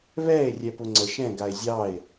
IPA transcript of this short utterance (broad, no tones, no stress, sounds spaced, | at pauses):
β ɛː e̯ rʲ ɛ p ʊ ŋ͡ǀ ə ʃ ɛ̃ ɡ a e̯ zʲ ɑː e̯